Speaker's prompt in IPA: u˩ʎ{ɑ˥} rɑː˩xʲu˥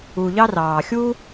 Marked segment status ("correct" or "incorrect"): correct